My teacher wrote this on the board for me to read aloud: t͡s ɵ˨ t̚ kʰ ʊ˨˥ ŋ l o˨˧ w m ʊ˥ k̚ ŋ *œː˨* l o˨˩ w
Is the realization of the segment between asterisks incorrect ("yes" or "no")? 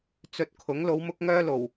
yes